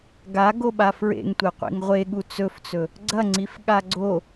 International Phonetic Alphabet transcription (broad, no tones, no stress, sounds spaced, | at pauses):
ɡ a ɡ o ɓ a f ɹ ḛ ŋ tʷ e qʷ ḭ ŋ ʁʷ e ɠ u t͡s ɵ f t͡s ɵ | ɡ͡ǀ ɐ ŋ͡ǀ i f ɠ a ɡ͡ǀ o